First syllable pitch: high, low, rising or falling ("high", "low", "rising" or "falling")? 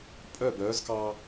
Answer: falling